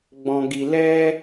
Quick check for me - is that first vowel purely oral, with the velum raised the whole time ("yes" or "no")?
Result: no